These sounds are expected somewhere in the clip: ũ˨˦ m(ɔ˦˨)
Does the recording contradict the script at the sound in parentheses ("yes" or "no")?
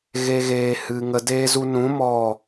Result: no